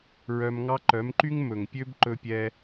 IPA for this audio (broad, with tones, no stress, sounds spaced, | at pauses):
ɹ œ˧ m ŋ ɑ˦ ǃ œ˨˦ m ǃ y˦ ŋ m ɵ˨ ŋ pʲ ø˦ b ǃ ɵ˧ pʲ ɛ˧